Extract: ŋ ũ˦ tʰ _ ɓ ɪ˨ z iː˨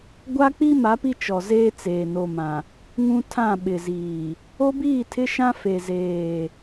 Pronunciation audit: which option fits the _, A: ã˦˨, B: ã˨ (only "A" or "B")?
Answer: A